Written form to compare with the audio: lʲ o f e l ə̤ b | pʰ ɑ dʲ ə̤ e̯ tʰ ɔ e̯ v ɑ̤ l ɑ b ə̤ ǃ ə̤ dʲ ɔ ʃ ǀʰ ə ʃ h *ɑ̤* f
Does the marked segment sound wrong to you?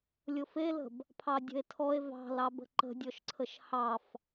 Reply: yes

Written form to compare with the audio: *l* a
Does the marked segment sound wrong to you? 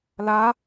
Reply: no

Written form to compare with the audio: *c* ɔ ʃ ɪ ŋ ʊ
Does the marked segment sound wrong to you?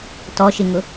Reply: yes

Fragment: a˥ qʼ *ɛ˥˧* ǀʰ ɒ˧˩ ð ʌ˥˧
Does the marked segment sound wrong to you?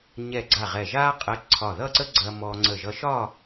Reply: yes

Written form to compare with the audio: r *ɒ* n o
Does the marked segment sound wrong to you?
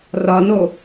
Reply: no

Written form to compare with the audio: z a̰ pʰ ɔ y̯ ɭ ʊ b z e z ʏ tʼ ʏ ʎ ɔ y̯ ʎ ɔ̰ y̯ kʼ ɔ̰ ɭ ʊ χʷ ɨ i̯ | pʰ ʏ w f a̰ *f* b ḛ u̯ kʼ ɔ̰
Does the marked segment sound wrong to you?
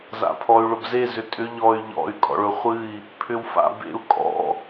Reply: yes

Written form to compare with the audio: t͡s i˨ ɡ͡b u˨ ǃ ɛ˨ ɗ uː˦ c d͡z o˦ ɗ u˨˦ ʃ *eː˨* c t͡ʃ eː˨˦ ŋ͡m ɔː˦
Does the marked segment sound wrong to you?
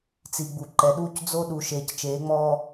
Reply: no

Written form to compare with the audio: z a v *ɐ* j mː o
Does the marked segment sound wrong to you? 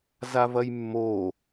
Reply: no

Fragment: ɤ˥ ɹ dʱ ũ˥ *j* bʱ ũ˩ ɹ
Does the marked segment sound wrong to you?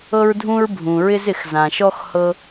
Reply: yes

